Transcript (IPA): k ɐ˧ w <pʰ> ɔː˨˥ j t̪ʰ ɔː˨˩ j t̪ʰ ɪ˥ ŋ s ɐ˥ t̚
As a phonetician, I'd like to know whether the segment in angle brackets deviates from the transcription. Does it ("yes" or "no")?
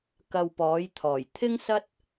yes